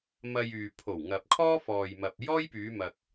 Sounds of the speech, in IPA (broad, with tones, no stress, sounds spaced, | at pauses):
m ɐ˧ j yː˨ pʰ o˨˩ w ŋ ɐ˨ p̚ kʰ ɔː˥ f ɔː˨ j m ɐ˨ p̚ j ɔː˥ j p yː˨˧ m ɐ˨ k̚